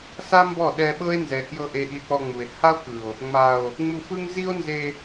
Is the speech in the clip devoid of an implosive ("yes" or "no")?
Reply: no